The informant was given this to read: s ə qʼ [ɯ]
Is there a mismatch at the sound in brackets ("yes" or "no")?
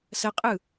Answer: no